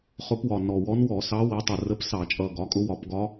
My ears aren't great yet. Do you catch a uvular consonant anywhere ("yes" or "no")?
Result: yes